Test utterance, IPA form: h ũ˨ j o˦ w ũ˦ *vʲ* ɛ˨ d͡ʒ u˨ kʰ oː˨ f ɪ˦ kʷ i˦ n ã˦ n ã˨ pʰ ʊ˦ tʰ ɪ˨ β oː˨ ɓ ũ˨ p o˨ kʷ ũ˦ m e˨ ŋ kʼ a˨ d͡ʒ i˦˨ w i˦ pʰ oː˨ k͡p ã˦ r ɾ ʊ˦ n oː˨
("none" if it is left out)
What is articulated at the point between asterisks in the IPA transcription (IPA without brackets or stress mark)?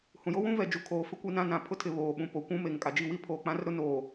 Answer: v